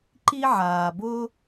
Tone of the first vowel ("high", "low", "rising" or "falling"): high